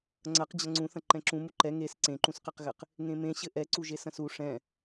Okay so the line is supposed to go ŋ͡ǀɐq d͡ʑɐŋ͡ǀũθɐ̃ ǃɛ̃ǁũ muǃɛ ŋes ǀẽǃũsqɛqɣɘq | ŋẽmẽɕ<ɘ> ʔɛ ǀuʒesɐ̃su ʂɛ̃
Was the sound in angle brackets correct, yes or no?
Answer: yes